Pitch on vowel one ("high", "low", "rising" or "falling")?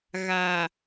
low